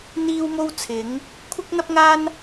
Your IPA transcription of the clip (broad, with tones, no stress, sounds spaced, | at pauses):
n̪ iː˥ w m o˥ w t͡sʰ ɪ˨˥ ŋ | kʷʰ ɪ˥ k̚ n̪ ɐ˥ p̚ ŋ aː˥ n